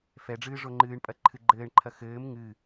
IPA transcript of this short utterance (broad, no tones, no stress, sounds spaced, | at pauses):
f ɛ ɖ͡ʐ ɨː ʐ o ŋ͡ǃ ɨː ɳ pʼ ɐ ǃʰ ɨ ɡ͡ǃ ɘː ɳ ǃʰ ɐ x ɘː m ŋ ɨ